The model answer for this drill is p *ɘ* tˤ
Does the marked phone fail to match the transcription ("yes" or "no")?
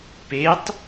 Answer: yes